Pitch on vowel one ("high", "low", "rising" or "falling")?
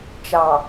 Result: low